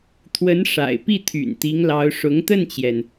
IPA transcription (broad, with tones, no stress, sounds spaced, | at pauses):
t̪ʰ w ə˧˥ n ʂ a̰˨˩ ɪ̯ p i˥˩ t̪ʰ y̰˨˩ n t̪ i˧˥ ŋ l ɑ˧˥ ʊ̯ ʂ ʊ˧˥ ŋ t̪ ə˥˩ n t͡ɕ j ɛ˩ n